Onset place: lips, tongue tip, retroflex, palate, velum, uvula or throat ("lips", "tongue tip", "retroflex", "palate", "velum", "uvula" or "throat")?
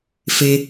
lips